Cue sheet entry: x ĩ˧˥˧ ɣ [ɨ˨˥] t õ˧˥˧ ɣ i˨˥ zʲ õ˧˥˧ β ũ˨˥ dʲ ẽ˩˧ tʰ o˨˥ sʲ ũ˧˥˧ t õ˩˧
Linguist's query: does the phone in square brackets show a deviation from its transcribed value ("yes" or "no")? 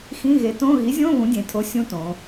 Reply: yes